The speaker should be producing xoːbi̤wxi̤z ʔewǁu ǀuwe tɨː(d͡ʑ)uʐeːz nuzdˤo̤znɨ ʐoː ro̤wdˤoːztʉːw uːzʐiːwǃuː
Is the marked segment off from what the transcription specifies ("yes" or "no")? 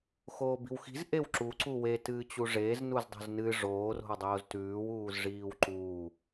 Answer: yes